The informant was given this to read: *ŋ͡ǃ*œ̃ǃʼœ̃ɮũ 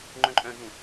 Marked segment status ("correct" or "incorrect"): correct